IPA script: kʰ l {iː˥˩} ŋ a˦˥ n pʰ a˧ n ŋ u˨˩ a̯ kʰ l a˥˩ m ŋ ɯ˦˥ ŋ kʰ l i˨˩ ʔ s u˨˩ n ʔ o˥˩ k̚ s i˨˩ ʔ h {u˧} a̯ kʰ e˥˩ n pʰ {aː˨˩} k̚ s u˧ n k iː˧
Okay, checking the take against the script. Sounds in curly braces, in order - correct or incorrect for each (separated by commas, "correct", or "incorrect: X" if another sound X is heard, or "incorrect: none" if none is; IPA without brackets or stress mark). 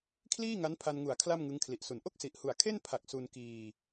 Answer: correct, incorrect: u˨˩, incorrect: a˨˩